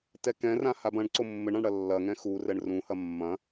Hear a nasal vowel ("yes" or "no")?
yes